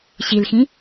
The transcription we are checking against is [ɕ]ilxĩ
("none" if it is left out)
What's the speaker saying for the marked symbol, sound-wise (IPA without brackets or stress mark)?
ɕ